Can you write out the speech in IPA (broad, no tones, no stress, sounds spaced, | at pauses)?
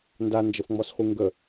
n d a n d͡ʒ ə f ŋ͡m ɔ s χʷ ɨ ŋ ɡ ə